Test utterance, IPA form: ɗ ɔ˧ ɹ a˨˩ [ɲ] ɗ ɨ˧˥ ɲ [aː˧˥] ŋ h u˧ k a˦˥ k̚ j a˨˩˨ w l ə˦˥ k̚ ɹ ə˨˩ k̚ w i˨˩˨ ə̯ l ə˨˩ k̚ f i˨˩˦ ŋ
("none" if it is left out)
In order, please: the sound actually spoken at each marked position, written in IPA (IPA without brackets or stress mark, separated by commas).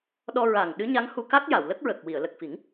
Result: ŋ, a˧˥